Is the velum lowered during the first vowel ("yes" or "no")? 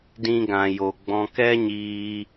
yes